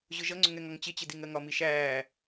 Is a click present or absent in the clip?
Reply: present